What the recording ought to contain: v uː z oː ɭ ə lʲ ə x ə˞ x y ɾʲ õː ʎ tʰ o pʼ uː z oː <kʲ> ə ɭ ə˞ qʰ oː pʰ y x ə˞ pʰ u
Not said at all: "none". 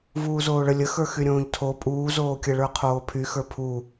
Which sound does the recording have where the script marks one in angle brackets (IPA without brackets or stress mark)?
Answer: kʲ